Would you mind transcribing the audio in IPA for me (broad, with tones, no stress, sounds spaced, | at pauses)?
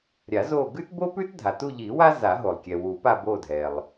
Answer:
ɾʲ a˨˩˦ z o˦˨ ɡ ʉ˥ t b o˥ p ʉ˥ t dʱ a˩ t u˦˨ ʎ i˨˩˦ w a˥ z a˨˩˦ ɦ o˩ lˠ kʲ ɛ˩ w u˨˩˦ p a˦˨ b o˦˨ dʱ ɛ˩ lˠ